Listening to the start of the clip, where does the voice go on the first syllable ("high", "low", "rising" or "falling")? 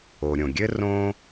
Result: low